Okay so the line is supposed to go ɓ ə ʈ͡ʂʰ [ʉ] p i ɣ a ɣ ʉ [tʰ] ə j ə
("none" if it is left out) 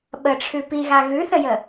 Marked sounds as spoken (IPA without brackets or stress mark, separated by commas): ʉ, θ